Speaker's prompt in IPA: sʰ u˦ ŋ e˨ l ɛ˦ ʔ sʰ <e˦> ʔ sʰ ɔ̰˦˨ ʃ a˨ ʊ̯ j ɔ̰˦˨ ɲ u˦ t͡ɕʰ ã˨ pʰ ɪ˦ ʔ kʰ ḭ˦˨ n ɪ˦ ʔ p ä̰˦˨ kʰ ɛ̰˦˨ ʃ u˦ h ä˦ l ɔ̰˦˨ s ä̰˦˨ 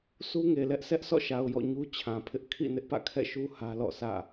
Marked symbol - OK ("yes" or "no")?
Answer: no